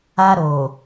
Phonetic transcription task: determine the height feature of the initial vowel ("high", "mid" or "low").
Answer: low